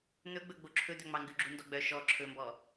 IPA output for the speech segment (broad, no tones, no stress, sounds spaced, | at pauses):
n̪ ɵ ɡ͡b ɵ ɡ͡b o ǁʰ ɵ d̪ œ ŋ͡m ɑ ŋ ɡ ʉ ɡ͡ǁ u n d ɔ ɡ͡b œ ʃ ɔ ǁʰ ɵ m b ɔ